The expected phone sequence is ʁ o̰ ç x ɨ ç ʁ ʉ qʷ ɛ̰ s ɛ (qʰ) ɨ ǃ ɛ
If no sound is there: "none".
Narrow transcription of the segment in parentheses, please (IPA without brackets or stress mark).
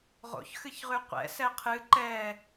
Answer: qʰ